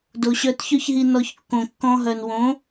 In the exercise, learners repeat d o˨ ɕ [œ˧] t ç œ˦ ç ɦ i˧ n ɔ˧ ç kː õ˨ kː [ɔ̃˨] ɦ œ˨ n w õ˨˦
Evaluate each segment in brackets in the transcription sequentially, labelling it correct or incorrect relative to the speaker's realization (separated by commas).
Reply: correct, incorrect